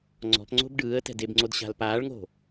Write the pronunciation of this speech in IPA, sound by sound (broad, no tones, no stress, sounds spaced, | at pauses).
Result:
ŋ͡ǀ ɔ̤ p ŋ͡ǀ o̤ b ɖ ɯː ə̯ t ɛ̤ d e b ŋ͡ǀ o d ɕ a̤ l p aː ɭ ŋ o̤